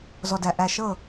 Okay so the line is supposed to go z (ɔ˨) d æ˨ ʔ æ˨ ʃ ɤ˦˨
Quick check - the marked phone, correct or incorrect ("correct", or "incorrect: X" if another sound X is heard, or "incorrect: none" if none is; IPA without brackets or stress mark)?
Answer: correct